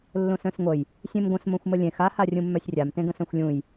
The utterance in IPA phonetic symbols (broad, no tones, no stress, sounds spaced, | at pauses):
lː õ s œ̃ s ŋʷ ə j | sʲ ẽ m ɡʷ ə̃ s m õ xʷ m ə lʲ ẽ x a h a rʲ ũ mː œ sʲ rʲ a m t ẽ ɡ ə̃ s œ̃ xʷ lʲ ũ j